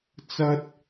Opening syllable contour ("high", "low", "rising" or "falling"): high